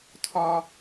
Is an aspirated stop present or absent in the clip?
present